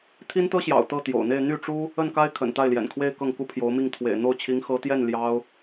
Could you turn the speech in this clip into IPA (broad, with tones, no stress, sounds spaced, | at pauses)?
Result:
t̪ʰ i˥ n t̪ ɤ˥ ɕ j ɑ̰˨˩ ʊ̯ t̪ ɤ˥˩ t̪ j o̰˨˩ ʊ̯ n̪ e˥˧ ɪ̯ n̪ y˥˩ ʈ͡ʂ u˥ | ə˥˩ n k a˥ ɪ̯ kʰ ə̰˨˩ n t̪ a˥˩ ɪ̯ l j ɛ̰˨˩ n kʰ w e˥˧ ɪ̯ k ɤ˥˩ ŋ k u˥ pʰ j o˧˥ ʊ̯ m i˥˩ ŋ t̪ʰ w ḛ˨˩ ɪ̯ n̪ o˥˩ ʊ̯ t͡ɕʰ i˧˥ ŋ x ɤ˧˥ t̪ j ɛ˥˩ n l j ɑ˥ ʊ̯